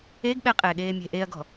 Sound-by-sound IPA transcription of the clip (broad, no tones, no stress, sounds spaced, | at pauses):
e ɡ ɓ ɛ qʼ eː ɠ eː mʲ e̤ ʔ e ɐ̯ ɡ ɔ̤